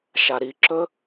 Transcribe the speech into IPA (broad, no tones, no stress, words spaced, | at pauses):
ʃaɾiǁɵ